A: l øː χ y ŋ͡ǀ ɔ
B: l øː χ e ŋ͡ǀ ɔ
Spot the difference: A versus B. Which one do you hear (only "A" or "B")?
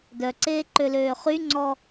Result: A